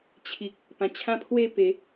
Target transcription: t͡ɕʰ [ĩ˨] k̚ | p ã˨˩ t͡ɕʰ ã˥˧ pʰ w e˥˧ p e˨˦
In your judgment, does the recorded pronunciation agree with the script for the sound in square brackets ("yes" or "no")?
no